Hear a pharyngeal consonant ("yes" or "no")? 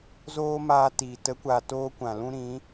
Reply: no